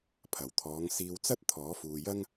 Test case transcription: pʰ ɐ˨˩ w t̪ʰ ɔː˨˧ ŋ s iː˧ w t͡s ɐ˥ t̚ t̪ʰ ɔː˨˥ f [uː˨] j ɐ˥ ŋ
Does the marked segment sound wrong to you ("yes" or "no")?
no